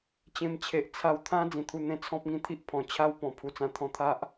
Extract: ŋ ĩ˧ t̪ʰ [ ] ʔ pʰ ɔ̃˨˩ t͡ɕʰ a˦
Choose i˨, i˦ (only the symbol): i˦